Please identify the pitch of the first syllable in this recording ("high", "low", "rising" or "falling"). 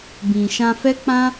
low